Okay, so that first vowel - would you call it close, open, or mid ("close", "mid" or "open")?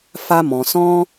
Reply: open